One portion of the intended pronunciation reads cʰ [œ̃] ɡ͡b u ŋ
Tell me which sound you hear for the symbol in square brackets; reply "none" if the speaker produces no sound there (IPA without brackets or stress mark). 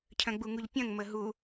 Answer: œ̃